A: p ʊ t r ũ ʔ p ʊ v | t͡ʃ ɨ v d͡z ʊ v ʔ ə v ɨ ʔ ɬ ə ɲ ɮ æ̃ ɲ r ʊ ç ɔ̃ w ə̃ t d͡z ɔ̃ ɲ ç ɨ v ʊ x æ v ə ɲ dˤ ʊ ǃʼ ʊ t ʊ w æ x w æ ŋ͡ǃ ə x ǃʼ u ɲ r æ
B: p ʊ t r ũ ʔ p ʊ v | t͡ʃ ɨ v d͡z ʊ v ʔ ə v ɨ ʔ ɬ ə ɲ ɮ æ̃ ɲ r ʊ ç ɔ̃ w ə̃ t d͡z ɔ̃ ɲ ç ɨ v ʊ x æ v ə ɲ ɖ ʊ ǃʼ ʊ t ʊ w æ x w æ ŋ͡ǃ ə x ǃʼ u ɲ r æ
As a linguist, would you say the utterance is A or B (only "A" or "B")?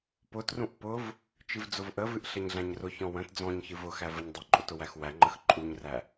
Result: A